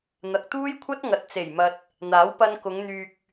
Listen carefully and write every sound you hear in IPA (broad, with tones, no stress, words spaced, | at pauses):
n̪ɐ˨k̚t̪uː˥jkʷʰɐ˥t̚ ŋɐ˨t̚t͡se˨˩jmɐ˨t̚ | n̪aː˨˥w pɐ˧nkʊ˨˧ŋn̪yː˨k̚